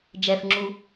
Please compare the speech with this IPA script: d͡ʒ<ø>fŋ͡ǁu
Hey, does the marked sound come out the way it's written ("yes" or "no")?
no